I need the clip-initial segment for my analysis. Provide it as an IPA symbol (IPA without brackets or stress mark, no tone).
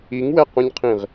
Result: i